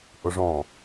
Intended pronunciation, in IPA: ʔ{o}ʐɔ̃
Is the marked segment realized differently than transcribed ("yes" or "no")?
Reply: no